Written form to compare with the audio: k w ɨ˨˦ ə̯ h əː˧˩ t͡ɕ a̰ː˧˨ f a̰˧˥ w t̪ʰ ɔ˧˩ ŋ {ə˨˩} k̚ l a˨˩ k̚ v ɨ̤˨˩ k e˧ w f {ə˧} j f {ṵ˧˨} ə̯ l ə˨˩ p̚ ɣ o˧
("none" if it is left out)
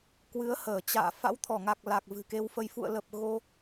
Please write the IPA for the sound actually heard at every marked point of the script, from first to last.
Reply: a˨˩, ə˧, ṵ˧˨

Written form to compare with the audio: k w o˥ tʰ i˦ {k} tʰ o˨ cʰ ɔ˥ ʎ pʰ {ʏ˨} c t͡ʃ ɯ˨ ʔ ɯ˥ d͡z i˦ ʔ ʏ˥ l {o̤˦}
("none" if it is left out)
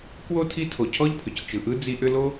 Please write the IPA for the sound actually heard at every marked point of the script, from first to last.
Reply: none, ʏ˩, o˦

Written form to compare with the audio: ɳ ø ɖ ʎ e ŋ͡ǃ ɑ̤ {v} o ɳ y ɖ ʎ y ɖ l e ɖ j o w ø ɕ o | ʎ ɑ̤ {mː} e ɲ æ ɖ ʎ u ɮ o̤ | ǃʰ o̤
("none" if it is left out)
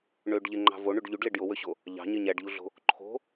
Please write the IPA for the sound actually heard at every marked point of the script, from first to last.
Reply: v, ɲ

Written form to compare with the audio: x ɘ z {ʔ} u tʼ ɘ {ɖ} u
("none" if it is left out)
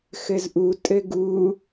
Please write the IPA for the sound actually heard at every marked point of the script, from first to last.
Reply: ʔ, ɡ

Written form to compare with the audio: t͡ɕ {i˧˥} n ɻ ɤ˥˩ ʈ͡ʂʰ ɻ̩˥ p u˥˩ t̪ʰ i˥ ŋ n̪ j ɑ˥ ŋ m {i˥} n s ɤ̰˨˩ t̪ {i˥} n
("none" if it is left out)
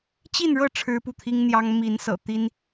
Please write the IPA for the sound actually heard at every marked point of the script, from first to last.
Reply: i˥˧, i˧˥, i˥

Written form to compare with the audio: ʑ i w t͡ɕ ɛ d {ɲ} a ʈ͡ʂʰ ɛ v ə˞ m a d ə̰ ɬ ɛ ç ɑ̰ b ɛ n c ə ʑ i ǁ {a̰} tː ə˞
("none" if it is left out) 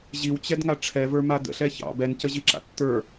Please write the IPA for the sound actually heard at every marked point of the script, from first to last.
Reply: ŋ, a̰

